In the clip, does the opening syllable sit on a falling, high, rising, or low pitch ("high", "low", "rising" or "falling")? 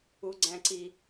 high